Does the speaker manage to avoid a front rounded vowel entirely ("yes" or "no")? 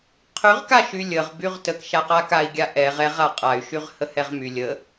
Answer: no